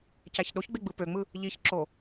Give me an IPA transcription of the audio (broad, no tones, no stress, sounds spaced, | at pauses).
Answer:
c æ ç ɗ o ç ɡ͡b e ɡ͡b ɯ p ø ŋ͡m ɯ | ʎ i ç ǁ o